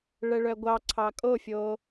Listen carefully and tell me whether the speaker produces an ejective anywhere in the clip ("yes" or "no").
yes